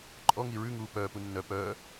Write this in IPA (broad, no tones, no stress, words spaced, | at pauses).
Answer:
ǃʼɔŋi ɹʉŋuː pœːpu nːœ pœː